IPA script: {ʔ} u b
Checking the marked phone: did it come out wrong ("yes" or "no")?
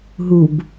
yes